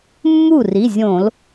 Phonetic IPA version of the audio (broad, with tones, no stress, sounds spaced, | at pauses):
mː u˥˩ r i˩˧˩ zʲ õ˧˩˧ l